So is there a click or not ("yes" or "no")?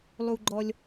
yes